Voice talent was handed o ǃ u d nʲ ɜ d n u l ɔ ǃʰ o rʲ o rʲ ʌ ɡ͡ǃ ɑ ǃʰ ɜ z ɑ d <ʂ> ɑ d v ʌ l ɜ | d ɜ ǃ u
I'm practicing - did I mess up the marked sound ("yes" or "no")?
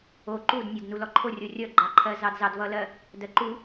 yes